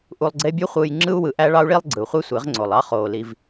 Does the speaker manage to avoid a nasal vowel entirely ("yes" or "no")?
yes